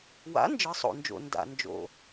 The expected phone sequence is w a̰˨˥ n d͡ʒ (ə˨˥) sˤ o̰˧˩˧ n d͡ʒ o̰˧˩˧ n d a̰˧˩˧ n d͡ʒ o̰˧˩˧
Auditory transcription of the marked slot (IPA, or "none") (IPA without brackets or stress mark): ɯ˨˥